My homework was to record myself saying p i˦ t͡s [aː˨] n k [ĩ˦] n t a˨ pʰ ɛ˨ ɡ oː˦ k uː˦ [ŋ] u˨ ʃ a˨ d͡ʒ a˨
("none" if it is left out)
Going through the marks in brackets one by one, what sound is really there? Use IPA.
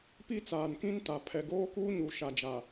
aː˨, ĩ˦, ɲ

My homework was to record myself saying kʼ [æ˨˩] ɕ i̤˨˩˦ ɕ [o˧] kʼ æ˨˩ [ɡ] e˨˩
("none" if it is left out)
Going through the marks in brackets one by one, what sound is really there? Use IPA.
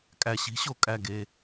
æ˨˩, o˨˩, ɡ

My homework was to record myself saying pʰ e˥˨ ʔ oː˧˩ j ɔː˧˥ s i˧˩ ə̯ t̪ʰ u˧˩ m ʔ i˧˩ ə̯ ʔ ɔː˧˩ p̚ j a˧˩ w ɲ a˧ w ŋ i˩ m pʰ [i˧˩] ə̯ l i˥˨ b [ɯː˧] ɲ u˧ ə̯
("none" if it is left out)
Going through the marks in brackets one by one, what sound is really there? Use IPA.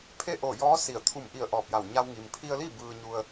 i˧, ɯː˧

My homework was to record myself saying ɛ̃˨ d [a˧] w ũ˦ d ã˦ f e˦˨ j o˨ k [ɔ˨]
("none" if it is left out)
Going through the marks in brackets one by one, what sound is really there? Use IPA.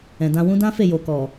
ã˧, ɔ˨

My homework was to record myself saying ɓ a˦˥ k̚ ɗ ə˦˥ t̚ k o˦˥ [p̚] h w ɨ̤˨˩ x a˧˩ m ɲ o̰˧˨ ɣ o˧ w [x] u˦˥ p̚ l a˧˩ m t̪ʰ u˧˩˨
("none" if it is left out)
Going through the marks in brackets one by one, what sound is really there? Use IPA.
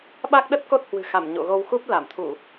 t̚, x

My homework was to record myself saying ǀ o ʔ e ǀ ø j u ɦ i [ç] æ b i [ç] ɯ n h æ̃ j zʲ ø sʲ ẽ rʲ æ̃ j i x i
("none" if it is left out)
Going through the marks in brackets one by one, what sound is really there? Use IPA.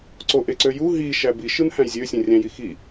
ʃ, ʃ

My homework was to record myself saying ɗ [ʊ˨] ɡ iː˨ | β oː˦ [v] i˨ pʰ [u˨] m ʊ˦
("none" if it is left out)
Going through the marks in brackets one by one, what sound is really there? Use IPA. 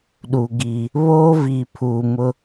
u˨, v, uː˨

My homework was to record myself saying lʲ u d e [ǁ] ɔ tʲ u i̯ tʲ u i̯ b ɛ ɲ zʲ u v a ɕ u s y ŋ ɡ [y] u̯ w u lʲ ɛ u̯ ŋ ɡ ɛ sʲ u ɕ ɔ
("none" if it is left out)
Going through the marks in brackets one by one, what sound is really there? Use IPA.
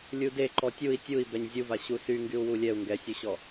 ǃ, y

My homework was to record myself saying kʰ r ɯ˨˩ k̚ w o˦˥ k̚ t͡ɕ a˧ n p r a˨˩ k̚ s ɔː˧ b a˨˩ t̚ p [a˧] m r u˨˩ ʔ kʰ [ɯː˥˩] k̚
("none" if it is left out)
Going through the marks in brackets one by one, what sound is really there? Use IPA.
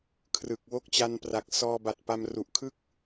a˧, ɯ˥˩

